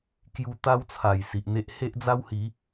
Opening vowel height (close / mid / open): close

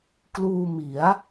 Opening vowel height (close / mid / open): close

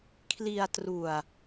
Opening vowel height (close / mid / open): close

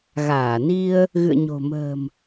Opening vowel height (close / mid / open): open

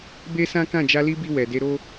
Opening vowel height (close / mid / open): mid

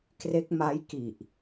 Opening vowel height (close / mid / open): mid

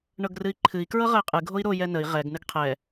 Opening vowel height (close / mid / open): mid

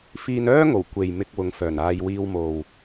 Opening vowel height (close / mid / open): close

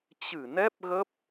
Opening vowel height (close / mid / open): close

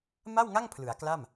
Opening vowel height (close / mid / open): open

